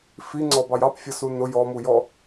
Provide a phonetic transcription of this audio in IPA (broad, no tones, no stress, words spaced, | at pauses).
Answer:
fiŋ͡ǀɔbɑj ɑpfʲʌsu nʊ jɔmujɔ